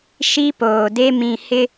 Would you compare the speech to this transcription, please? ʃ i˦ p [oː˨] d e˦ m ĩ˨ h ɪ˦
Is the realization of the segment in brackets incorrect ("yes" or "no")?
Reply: no